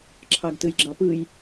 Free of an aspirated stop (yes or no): no